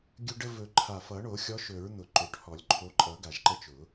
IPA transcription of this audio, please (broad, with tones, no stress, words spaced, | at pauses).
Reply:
ɡʲɵ˦ɖə˦vɵ˨˩˦ ǃʰa˨˩fʌ˨˩˦ɳo˨˩˦xʲɔ˨˦ ʃɵ˨˩˦ɹn̪ʊ˨˩ ǃɵ˨˩ʈhɔ˨˩˦lʲǃʰo˨˦ ǃʼʌ˨˩˦ ɡa˨˩ʒǃə˦t͡ʃʊ˨˩˦